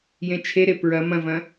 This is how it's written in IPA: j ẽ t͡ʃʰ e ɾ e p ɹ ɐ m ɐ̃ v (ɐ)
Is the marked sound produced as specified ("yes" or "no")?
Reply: no